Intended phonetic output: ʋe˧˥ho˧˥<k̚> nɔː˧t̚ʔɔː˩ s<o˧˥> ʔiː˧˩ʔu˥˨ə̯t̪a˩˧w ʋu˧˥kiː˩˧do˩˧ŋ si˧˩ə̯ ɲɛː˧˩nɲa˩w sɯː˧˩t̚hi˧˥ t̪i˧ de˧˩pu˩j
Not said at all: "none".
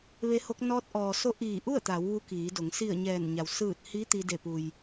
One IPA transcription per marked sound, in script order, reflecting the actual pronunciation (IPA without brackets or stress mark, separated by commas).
k̚, o˧˥